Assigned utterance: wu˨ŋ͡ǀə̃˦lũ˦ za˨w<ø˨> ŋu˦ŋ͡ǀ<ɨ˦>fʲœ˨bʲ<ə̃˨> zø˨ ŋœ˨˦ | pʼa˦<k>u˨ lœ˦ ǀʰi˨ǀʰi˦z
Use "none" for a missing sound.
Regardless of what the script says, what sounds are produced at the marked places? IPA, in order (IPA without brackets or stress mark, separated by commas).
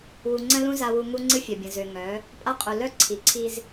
u˨, ɨ˦, ə̃˨, qʼ